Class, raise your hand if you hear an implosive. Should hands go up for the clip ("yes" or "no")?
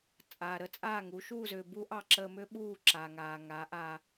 yes